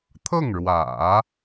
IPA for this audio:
t̪ʰ ɤ˥˩ ŋ ɻ w ä̰˨˩˦

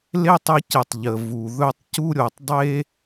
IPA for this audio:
l e˥ tˤ ɘ˦ c ɘ˨ tˤ ʎ ə˩ v u˩ ð ɵ˦ tˤ c u˥ ɾʲ o˨ tˤ dˤ e˥

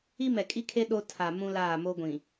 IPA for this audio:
i˦ m ɛ˨ kʼ i˦ kʰ e˦ ɗ o˦ tʰ a˨ m ũ˦ l aː˦˨ m o˦ ɡʷ ĩ˨

